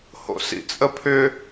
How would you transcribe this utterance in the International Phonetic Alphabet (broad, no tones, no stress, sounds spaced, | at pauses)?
h o̰ s ḭ t͡sʼ ə pʰ ʏ